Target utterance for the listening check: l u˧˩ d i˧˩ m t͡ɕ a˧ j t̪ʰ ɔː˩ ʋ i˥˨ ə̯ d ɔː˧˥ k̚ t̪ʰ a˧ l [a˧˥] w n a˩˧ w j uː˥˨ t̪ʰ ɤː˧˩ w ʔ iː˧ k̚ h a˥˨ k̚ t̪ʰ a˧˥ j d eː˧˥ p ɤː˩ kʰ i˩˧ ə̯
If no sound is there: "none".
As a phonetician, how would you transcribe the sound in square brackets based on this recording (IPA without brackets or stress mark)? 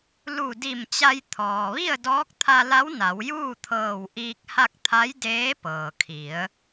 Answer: a˧˥